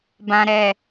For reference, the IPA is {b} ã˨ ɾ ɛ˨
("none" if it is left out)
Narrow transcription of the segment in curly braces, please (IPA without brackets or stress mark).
b